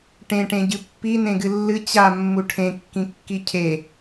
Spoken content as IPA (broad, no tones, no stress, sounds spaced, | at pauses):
ʈ ẽ ʈ ẽ ɟ ɨ pː i n ẽ ɡ ɨ lː ɨ t͡ɕ a mː u ʈʰ ẽ kː ĩ kː i cʰ e